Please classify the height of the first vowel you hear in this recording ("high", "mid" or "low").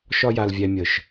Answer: low